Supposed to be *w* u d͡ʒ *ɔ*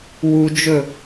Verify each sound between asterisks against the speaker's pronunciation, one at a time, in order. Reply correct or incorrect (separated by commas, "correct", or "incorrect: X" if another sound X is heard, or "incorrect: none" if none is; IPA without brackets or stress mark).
correct, incorrect: ɵ